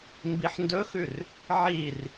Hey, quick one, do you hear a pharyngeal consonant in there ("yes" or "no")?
yes